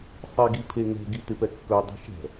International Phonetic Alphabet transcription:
sˤ i ɡ i pʰ e ŋ ɛ̤ ɡ i t ɪ p ɛ kː ɵ dˤ i̤ ʃ ɛ̤

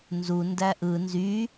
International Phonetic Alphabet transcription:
n z u n d æ ʔ ɯ n z y

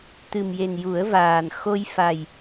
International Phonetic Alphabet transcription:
t̪ ɨ˨˩ m j e˨˩ n j u˨˩˦ ə̯ v aː˨˩ n x o˧ j f a˨˩ j

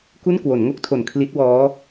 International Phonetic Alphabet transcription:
k u˥˩ n k w o˩˦ n ŋ o˥˩ k̚ tʰ o˨˩ n kʰ l i˦˥ t̚ w ɔː˦˥

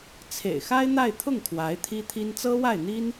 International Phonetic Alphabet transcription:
t͡sʰ ḛ˨˩ ɪ̯ x a˥ ɪ̯ n̪ a˥˧ ɪ̯ t̪ʰ ʊ˥˩ ŋ kʰ w a˧˥ ɪ̯ t̪ʰ i˥ t̪ʰ i˥ n t͡s ɤ˥ w a˥˩ ɪ̯ n̪ i˥ n

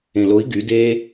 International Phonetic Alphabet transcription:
ẽ l o i̯ ɡ y d e

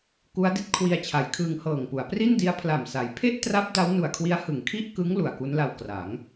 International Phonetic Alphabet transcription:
k u˦˥ a̯ d i˦˥ t̚ kʰ w i˧ a̯ t͡ɕʰ a˩˦ j kʰ ɯː˧ ŋ h ɤː˨˩ ŋ p u˩˦ a̯ p r i˥˩ n d i˦˥ a̯ pʰ l a˨˩ m s a˩˦ j pʰ e˥˩ ʔ t r a˦˥ p̚ d a˦˥ w n u˨˩ a̯ kʰ w i˦˥ a̯ h ɯ˩˦ ŋ kʰ i˥˩ ʔ k ɯ˦˥ ŋ l u˨˩ a̯ k u˦˥ n l a˧ w k r a˩˦ ŋ

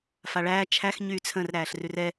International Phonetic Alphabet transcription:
f a ɭ æː t͡ʃʰ æ x ɲ yː t͡sʰ ə̃ r ɾ æː ɬ r ʉ r ɛ

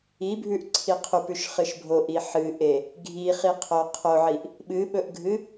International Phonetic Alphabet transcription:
i bʱ ʉ ʔ ǀʰ i qʰ u p ʉ ʃ χ ɨ ʃ bʱ o ʔ i ħ ɨ ʔ e | ɡʱ i χ i qʰ o qʰ o ʕ i ʔ | ɓ ɨ ɓ ɵ ʔ ɡʱ ɨ

